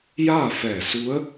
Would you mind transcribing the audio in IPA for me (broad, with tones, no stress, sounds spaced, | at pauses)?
j aː˥˨ f ɛː˧˩ s u˧˥ ə̯